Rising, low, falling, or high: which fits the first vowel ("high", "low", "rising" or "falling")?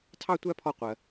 high